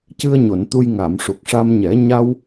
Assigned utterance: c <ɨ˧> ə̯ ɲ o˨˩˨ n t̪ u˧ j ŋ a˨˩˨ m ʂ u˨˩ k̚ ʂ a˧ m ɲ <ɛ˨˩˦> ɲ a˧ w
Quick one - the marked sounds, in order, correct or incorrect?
correct, correct

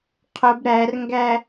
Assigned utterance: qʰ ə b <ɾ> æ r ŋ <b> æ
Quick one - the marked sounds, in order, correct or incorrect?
correct, incorrect

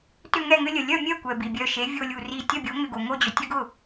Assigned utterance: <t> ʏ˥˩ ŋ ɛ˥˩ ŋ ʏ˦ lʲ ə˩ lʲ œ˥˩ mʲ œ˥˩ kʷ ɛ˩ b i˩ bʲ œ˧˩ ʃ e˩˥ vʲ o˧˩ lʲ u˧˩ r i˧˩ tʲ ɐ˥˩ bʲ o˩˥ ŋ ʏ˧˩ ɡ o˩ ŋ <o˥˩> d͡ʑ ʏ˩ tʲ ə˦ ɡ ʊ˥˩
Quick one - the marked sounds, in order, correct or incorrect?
correct, correct

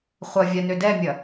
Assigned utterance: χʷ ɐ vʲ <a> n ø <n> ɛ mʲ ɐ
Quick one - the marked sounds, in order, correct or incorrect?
correct, incorrect

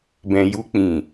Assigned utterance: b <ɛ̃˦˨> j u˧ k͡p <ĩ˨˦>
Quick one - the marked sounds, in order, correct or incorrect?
incorrect, incorrect

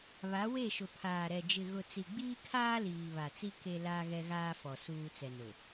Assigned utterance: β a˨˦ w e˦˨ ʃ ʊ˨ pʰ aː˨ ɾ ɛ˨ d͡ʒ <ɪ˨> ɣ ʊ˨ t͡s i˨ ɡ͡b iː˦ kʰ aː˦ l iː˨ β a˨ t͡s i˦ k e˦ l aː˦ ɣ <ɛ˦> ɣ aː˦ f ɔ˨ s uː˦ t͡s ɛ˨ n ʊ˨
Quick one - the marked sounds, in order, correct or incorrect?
correct, correct

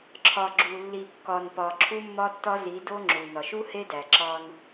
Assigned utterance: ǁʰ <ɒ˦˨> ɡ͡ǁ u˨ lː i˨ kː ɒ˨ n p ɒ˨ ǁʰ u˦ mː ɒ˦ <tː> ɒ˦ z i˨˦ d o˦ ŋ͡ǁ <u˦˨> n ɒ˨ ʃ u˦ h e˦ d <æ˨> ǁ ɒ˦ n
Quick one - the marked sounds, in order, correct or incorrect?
incorrect, correct, incorrect, correct

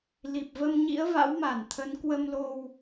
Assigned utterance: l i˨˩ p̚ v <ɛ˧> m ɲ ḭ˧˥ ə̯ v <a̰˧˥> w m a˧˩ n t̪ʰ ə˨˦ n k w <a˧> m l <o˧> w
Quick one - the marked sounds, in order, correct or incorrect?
incorrect, correct, incorrect, correct

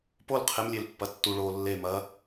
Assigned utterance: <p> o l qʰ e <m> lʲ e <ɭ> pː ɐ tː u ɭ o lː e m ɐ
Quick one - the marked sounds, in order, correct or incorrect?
correct, correct, incorrect

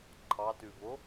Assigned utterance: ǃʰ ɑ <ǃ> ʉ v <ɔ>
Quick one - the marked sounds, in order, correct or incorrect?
incorrect, incorrect

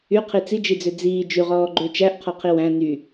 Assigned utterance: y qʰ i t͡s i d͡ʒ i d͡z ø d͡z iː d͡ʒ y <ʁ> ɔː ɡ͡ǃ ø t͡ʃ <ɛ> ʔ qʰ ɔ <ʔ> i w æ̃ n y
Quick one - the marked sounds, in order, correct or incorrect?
correct, incorrect, incorrect

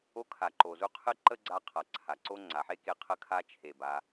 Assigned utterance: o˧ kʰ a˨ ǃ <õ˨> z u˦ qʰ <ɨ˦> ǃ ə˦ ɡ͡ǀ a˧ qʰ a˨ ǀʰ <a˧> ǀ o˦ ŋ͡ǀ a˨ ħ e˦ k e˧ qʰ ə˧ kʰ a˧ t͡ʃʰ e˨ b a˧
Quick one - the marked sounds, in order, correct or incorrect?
incorrect, correct, incorrect

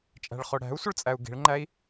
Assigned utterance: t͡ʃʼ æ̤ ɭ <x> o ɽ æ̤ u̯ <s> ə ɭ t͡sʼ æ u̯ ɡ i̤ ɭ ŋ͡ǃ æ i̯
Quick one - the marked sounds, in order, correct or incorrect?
incorrect, incorrect

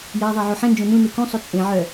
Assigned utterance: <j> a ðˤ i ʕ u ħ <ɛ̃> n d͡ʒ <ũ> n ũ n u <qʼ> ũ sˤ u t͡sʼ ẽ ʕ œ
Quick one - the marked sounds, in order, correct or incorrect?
correct, correct, incorrect, incorrect

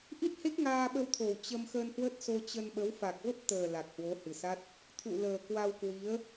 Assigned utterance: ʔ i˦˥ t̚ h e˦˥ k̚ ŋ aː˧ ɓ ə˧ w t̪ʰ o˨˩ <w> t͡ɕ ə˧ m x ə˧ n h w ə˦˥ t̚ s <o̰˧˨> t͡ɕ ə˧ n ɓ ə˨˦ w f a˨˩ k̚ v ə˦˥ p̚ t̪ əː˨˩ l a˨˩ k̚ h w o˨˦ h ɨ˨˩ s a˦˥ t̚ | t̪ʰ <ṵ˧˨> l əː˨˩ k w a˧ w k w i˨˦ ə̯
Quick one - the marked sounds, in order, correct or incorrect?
correct, incorrect, correct

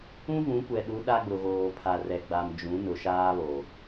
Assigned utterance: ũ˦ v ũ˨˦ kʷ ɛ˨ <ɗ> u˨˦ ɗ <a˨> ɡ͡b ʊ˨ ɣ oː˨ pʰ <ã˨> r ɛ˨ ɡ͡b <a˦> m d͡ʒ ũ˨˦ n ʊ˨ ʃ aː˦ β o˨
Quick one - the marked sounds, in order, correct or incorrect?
correct, incorrect, incorrect, incorrect

